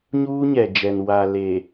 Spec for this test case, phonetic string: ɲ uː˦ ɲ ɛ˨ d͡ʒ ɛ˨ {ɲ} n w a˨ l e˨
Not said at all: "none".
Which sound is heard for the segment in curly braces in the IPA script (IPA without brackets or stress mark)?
none